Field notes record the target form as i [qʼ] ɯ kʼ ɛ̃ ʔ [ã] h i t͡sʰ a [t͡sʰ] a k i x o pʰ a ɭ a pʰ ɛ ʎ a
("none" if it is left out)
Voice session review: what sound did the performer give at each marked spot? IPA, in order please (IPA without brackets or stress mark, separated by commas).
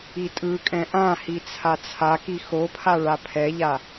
tʼ, ã, t͡sʰ